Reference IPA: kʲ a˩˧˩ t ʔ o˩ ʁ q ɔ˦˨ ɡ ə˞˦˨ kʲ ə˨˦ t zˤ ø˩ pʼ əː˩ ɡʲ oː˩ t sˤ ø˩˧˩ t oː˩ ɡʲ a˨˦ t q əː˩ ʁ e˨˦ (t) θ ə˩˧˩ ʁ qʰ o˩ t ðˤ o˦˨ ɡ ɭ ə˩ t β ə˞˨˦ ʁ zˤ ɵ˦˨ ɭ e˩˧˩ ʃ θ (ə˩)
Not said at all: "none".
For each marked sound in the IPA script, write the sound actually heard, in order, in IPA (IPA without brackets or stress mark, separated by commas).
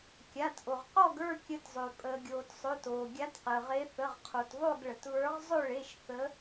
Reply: none, ə˨˦